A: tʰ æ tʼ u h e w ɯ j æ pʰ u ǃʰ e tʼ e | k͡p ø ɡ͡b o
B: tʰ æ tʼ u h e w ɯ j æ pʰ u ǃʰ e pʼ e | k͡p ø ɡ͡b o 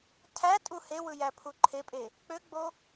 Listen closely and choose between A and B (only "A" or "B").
B